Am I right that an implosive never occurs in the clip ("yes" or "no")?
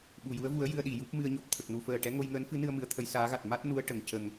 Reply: no